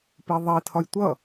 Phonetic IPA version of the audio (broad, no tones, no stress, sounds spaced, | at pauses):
p i ðˤ i tʰ ɒ j tʷ ʌ